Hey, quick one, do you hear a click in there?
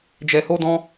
no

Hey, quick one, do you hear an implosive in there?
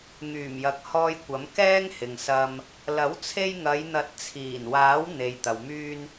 no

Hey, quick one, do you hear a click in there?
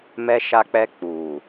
no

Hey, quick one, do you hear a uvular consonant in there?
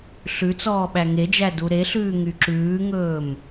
no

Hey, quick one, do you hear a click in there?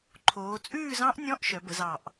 yes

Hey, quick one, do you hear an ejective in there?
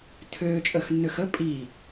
yes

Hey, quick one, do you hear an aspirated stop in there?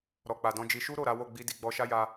no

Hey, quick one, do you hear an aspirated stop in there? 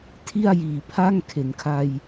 yes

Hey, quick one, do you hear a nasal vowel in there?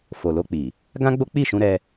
yes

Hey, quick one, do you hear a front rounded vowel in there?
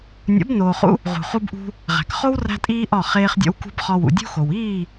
no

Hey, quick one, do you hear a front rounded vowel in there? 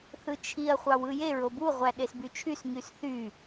yes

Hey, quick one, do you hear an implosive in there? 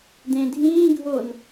no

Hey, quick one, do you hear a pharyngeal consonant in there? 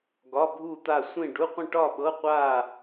no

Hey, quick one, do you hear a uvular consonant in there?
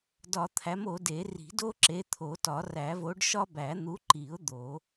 no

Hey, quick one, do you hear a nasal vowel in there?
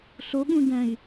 yes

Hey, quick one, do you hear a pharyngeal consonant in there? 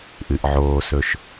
yes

